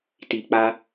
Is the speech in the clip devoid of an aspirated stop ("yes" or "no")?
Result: yes